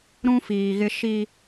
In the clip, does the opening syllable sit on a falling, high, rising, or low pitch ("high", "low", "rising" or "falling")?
high